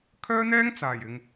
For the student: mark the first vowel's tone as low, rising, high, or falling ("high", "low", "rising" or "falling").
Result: high